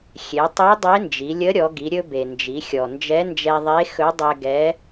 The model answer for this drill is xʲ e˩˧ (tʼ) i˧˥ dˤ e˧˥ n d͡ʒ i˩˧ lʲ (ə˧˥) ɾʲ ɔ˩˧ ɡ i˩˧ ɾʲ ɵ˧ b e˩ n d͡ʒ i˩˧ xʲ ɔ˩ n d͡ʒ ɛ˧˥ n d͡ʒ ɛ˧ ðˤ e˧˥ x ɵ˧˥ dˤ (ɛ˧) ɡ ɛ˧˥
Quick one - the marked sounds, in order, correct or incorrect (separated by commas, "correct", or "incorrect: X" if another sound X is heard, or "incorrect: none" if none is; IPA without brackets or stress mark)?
incorrect: tˤ, correct, correct